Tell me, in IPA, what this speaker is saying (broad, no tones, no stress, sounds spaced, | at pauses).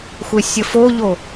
xʷ e sʲ ə f o ʎ o